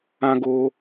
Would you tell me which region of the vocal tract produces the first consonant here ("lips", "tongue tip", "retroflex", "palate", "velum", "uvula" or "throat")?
velum